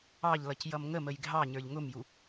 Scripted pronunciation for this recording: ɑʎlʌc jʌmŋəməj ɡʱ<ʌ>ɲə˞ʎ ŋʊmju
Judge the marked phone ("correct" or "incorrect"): incorrect